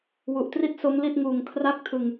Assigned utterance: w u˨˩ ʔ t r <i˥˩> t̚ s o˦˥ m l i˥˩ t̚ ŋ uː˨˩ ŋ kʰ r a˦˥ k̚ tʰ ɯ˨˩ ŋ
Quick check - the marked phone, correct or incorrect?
correct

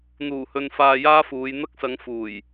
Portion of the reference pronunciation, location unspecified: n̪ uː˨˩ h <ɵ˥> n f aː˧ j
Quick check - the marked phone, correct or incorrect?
incorrect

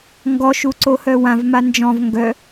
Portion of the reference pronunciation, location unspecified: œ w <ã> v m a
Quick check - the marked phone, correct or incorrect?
correct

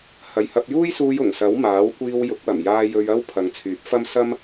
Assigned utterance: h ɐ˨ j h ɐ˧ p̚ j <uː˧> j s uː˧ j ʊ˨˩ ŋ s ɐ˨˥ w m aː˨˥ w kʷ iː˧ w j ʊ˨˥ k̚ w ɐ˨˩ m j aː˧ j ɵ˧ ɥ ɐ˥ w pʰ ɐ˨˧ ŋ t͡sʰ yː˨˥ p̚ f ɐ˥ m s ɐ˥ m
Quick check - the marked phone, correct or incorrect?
incorrect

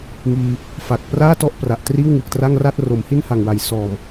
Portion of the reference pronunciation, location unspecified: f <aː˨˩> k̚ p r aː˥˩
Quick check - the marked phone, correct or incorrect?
incorrect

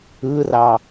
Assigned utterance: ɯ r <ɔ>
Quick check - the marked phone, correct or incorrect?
incorrect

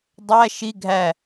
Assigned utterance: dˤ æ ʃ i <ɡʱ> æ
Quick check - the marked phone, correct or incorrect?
correct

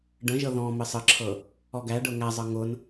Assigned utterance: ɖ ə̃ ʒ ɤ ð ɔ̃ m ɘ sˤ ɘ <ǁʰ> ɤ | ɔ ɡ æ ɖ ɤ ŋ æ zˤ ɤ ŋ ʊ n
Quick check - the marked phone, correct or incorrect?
correct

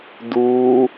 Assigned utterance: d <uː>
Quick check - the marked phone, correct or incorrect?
correct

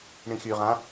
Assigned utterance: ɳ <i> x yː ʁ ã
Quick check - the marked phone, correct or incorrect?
incorrect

